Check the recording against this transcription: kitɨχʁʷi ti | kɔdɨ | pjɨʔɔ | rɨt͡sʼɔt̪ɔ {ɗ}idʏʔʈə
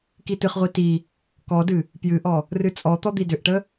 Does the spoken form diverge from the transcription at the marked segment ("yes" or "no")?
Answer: yes